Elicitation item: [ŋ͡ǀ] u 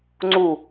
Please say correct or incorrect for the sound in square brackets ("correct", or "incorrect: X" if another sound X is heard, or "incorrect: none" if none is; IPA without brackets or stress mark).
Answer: correct